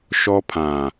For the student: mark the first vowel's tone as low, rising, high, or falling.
high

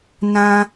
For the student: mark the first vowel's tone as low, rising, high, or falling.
high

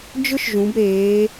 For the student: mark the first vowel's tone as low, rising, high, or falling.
high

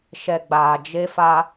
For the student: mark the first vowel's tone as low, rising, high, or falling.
low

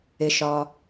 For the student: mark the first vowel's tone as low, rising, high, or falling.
low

